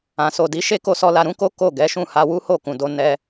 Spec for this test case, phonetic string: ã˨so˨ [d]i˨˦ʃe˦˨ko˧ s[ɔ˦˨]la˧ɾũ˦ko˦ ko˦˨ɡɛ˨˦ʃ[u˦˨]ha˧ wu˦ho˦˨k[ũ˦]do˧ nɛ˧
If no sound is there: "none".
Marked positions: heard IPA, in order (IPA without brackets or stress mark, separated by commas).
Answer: d, ɔ˧, ũ˦˨, ũ˨